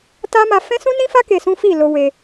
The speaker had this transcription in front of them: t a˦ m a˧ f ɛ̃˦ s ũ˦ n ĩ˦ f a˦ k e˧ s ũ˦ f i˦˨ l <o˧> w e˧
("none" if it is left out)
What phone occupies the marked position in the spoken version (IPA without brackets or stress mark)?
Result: o˧